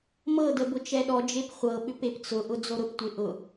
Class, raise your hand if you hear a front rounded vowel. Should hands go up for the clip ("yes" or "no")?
yes